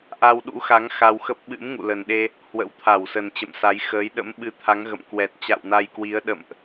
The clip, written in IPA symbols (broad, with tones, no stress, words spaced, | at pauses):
ʔa˧wɗṵ˧˥xa˨˦ŋ xa˧wxə˦˥p̚ ɓɨ̰˧˥mŋṵ˧˨lə˨˩nɗe˧ | hwə̰˧˥wt̪ʰa˧˩wsə˨˩n t͡ɕə̰˧˨msa˨˦jxəː˨˦j ɗə̰˧˥mɓɨ˧t̪ʰa˨˦ŋ ɣə̰˧˨mkwɛ˨˩t̚ t͡ɕa̰˧˨wna˧jkwi˨˦ə̯ ɗə̰˧˨mʔ